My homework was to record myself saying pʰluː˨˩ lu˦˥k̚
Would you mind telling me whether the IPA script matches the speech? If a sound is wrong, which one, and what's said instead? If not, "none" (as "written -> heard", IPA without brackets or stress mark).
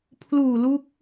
none